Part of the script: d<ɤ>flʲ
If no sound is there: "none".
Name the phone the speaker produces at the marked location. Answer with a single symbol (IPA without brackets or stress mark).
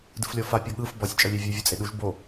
ɯ